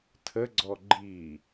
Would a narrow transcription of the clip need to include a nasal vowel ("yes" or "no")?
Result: no